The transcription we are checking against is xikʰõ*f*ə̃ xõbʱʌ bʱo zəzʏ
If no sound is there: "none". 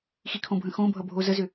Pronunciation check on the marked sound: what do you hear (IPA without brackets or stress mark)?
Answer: bʱ